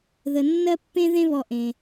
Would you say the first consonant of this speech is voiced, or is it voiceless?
voiced